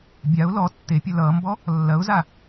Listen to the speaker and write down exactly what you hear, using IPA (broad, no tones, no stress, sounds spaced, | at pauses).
bʲ a ʊ̯ l ɔ tː e pʲ ɐ l ʌː m b ɔ | lː ɐ ʊ̯ z a